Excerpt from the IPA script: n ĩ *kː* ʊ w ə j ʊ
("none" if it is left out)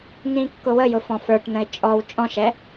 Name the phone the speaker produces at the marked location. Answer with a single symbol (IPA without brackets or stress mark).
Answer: kː